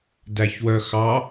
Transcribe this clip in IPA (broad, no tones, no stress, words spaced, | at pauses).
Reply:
dæçwœxɑ